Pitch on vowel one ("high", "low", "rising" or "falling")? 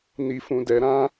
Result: high